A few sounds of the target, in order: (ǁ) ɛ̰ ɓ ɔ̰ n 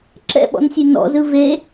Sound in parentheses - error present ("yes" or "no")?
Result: no